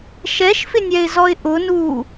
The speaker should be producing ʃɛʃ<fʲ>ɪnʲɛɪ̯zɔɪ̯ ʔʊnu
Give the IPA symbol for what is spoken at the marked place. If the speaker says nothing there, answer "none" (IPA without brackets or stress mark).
f